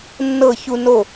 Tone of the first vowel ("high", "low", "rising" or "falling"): falling